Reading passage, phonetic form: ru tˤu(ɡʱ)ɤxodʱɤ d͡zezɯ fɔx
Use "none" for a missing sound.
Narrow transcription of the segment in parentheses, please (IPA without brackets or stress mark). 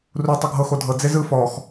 ɡʱ